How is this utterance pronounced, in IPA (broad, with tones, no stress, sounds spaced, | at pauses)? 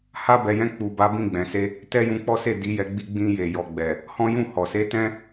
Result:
h a˧ b ɛ˨ j ɛ̃˧ k͡p u˨ b a˨˦ b ĩ˦˨ ɡ͡b ɛ̃˨ s e˧ | t ɛ˦ j ũ˧ k͡p ɔ˦ s e˦˨ d i˨˦ j ɛ˧ ɡ͡b i˧ ɡ͡b ĩ˧ j e˨ j ɔ˨ ɡ͡b ɛ˨ | h ɔ̃˦ j ũ˦˨ h ɔ˨ s e˧ t ɛ̃˦